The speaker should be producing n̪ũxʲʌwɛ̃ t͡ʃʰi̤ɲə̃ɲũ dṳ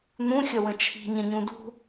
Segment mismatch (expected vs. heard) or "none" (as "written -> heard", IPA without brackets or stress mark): ɛ̃ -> ə̃